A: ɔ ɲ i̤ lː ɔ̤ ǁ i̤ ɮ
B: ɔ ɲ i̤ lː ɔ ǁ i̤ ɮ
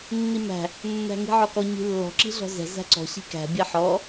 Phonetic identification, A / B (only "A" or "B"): A